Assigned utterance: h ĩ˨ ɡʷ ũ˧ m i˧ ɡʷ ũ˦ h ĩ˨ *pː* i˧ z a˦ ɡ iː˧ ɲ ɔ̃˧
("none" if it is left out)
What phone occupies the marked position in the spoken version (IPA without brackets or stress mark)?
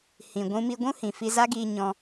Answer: f